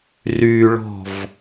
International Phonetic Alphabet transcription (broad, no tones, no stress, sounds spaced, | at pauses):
r y ɭ ɔ̤ v